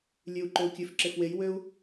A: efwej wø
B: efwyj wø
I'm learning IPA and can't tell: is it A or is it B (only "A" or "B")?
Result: A